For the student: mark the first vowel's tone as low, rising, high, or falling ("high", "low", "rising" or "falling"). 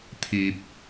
low